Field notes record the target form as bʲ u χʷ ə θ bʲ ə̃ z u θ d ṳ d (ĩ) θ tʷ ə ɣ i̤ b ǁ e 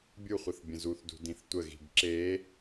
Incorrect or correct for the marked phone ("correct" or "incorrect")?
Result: correct